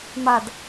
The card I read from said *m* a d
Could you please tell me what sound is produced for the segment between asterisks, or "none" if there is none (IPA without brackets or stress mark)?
m